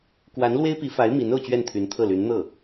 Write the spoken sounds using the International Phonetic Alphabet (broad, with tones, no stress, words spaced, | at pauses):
kwa˧˥nlwe˥ɪ̯pi˧˥ fa˧˥ɪ̯ mi˧˥n o˥˧ʊ̯t͡ɕɥɛ˥˩nt̪ʰy˧˥nt̪ʰɤ˥˩ ly˧˥nn̪ɤ˥˩